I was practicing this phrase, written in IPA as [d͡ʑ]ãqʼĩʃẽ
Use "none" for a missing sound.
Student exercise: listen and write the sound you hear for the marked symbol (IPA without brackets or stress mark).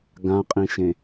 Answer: ɡ